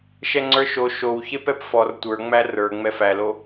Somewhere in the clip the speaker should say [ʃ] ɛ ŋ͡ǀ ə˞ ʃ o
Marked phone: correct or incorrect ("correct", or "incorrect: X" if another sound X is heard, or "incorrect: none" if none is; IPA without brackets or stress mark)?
correct